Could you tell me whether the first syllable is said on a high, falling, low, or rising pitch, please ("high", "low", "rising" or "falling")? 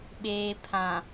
low